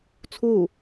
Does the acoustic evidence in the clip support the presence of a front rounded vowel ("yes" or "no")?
no